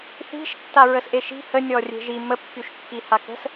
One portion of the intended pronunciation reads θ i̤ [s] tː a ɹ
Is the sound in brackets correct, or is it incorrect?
incorrect